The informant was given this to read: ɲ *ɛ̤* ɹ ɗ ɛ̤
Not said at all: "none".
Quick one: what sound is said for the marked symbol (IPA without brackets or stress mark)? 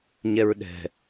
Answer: ɛ